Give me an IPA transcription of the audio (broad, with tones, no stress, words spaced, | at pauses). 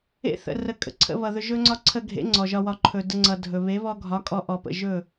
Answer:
ḛ˧θə̰˨ rə˨˦kʼə̰˨ǀʰə̰˧βʌ˨ ðɵ˧ʒɵ˦ŋ͡ǀɒ˦ ǀʰə˧ɡʱḛ˨˦ ŋ͡ǀɔ˨ʒɒ˧wɒ˧ ǃʰɵ˨də˧ŋ͡ǀʌ˨ dʱɵ˨ βe˨˦βɔ˧ɡʱɒ˨˦ kʼɔ˧ʔɔ˨ pə̰˨ʒɵ˦˨